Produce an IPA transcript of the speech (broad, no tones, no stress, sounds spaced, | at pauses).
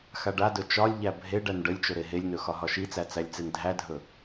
x a ɖ a d ɵ t͡ʃ ɒ lʲ ʎ æ bʱ e ɖ æ n ɖ ə lʲ t͡ʃ ɵ ɾ e ɦ e lʲ n ɵ x ɒ ɦ ɒ ʃ i t͡s æ t͡s æ lʲ t͡s e n dʱ æ dʱ ɵ